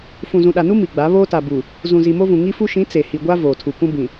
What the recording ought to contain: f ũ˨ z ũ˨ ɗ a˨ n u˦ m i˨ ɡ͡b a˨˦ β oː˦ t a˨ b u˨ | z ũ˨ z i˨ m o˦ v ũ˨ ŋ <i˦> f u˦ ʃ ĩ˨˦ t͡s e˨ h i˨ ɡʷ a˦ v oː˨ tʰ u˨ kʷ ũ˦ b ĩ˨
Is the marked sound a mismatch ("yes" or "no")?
no